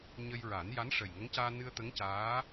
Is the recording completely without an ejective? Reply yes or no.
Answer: yes